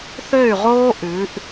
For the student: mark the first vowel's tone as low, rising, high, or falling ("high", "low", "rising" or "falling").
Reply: falling